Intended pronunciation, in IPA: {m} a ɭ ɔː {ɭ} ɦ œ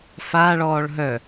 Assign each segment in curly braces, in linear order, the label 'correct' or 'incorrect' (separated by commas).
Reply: incorrect, correct